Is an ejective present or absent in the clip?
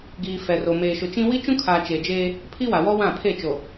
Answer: absent